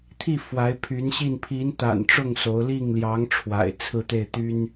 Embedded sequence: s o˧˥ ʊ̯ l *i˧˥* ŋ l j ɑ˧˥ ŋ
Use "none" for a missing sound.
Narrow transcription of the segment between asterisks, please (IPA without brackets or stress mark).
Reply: i˥˩